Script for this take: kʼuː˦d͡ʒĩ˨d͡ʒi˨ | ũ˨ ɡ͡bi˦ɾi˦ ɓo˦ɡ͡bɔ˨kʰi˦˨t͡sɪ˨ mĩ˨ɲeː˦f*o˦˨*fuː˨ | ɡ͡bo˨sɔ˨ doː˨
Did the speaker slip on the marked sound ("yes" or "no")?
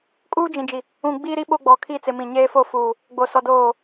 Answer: no